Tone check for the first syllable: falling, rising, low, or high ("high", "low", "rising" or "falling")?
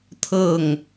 falling